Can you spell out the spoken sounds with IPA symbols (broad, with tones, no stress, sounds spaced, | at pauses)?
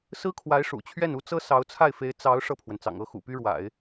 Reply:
s ɹ̩˥ kʰ w a˧˥ ɪ̯ ʂ ṵ˨˩ t͡ɕʰ ɥ ɛ˥˩ n u˥ t͡s ɤ˥ s ɑ˧˥ ʊ̯ t͡sʰ a˥˩ ɪ̯ f e˧˥ ɪ̯ t͡s ɑ˧˥ ʊ̯ ʂ ɤ˥˩ pʰ w ə˩ n t͡s ɑ̰˨˩ ŋ ɤ˥ x ṵ˨˩ p y˥ ɻ w a̰˨˩˦ ɪ̯